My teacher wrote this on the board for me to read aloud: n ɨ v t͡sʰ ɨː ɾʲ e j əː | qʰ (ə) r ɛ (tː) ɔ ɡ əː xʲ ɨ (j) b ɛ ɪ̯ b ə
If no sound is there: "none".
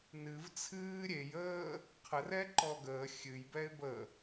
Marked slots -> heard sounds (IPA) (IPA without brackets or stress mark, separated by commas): ə, ǃ, j